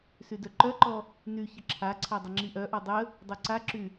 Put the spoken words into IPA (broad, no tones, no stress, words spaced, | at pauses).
sydœǃœǃɔ | ny çəǁʰaǀʰa dˤəŋ͡ǁiʔœʔɔ dˤə | dˤœǀaǁy